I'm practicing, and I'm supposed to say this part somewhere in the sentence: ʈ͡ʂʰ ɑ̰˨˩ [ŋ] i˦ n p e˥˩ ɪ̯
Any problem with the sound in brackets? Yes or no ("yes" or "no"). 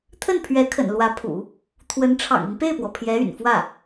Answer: no